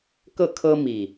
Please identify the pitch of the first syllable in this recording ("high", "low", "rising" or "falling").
falling